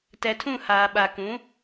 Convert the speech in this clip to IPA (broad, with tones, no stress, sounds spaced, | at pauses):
t ɛ˨ tʰ ũ˦˨ h aː˨ ɓ a˨ k ũ˨˦